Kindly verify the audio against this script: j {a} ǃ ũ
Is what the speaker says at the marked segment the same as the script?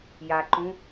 yes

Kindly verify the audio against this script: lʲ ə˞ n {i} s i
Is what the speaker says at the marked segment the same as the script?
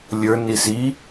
yes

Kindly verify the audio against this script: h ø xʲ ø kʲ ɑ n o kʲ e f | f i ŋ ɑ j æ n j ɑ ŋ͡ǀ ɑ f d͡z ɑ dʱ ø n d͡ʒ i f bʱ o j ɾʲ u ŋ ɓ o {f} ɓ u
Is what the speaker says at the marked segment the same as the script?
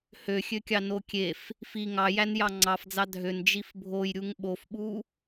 yes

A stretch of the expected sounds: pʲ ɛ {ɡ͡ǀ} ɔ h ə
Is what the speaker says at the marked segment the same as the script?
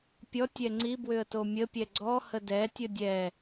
yes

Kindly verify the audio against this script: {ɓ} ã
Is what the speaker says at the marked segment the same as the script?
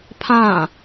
no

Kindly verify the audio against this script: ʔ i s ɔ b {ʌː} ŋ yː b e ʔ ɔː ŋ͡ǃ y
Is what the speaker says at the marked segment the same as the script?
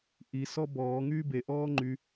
no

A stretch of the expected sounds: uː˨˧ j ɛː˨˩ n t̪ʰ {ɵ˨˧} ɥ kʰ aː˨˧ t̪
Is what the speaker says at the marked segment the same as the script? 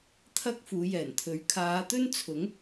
yes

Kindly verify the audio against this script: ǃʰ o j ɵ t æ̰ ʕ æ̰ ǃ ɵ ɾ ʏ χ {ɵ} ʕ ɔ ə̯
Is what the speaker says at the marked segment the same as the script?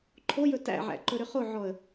no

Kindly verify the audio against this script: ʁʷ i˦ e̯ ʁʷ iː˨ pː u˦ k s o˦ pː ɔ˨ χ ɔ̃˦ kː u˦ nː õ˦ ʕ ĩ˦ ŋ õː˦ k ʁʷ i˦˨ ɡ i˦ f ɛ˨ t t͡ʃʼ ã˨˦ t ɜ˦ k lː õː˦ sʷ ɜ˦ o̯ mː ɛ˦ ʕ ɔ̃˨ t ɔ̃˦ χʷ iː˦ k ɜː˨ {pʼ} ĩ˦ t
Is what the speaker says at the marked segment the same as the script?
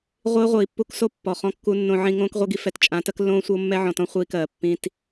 no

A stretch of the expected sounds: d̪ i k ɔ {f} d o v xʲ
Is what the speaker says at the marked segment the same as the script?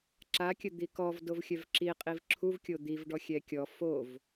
no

